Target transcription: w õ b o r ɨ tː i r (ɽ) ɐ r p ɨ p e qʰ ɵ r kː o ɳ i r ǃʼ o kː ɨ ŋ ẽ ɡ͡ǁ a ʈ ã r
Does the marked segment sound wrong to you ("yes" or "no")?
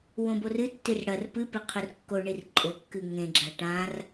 no